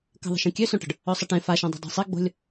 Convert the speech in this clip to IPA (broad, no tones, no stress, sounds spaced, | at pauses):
k ə̤ ðˤ ə̤ ʃ ĩ kʲ ø s õ ʈ ə̤ ɖ | ø sˤ ə ʈ ẽ f a ʃ ẽ dˤ i̤ dˤ i̤ sˤ i ɡ͡b o̤ lʲ